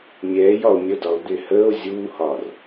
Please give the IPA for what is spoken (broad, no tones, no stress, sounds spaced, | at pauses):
mʲ ɛː j ɒ o̯ mʲ ə d ɒ o̯ d̪ ɪ h əː o̯ zʲ uː h ɒː r